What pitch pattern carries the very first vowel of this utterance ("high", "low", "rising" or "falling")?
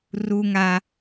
high